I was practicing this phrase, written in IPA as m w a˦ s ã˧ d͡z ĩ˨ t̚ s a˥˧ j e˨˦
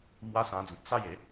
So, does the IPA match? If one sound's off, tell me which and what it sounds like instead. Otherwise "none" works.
none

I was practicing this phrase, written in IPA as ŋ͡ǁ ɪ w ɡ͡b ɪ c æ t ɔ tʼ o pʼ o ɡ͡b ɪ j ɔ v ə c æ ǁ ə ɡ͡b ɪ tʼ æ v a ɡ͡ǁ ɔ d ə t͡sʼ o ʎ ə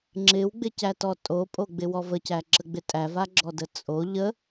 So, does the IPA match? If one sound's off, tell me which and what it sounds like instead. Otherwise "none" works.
j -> w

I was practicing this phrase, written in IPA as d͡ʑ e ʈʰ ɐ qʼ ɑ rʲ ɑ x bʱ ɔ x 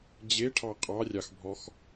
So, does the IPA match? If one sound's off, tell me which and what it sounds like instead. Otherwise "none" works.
ɐ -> ɑ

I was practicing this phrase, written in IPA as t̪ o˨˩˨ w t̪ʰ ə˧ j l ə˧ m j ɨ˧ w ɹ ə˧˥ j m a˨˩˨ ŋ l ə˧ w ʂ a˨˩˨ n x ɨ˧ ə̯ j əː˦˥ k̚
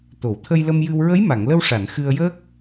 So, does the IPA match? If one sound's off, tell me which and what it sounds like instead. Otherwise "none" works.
none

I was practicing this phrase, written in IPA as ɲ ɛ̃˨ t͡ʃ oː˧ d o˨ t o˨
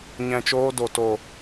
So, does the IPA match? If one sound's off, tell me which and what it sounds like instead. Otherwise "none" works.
none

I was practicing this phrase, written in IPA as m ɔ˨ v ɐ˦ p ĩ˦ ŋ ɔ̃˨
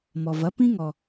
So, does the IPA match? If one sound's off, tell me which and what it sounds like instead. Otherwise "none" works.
ɔ̃˨ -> ɔ˨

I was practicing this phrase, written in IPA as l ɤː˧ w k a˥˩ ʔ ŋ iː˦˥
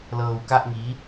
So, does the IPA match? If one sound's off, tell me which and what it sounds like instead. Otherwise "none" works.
none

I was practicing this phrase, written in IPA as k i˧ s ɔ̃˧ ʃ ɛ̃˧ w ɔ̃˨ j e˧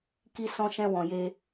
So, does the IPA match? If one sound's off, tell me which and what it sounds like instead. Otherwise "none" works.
none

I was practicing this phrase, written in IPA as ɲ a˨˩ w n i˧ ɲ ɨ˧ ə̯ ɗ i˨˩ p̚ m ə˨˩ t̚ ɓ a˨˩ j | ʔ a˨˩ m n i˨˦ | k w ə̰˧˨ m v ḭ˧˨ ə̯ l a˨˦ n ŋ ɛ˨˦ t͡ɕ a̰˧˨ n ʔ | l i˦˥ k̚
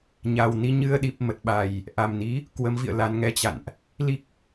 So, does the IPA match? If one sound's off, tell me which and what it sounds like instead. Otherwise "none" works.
ə̰˧˨ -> ə˨˦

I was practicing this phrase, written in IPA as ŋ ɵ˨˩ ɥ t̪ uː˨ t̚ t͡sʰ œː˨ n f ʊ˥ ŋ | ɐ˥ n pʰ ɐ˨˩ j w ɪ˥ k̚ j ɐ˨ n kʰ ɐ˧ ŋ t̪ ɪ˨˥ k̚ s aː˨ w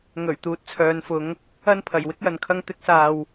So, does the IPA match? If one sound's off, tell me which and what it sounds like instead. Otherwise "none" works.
ʊ˥ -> ʊ˨˧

